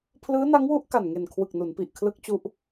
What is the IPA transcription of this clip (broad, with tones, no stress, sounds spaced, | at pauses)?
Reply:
pʰ l ɯː˦˥ n a˦˥ ŋ w u˦˥ ʔ k a˨˩ n ŋ e˨˩ n kʰ w ɯ˨˩ k̚ n u˩˦ n p i˨˩ ʔ kʰ l ɯ˦˥ k̚ t͡ɕ u˦˥ ʔ